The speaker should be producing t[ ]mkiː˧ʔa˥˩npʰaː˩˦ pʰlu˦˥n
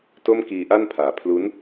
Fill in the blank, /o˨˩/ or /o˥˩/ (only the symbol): o˥˩